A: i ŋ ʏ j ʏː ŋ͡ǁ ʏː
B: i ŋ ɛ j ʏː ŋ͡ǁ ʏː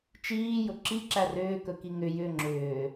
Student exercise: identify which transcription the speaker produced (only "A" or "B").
A